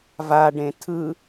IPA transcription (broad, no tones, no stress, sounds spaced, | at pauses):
v a ɖ ẽ tʰ ɯ